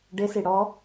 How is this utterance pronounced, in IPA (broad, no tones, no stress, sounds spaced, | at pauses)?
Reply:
ɖ ɪ s i ɽ ɔ